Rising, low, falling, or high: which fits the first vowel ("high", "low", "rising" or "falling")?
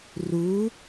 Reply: rising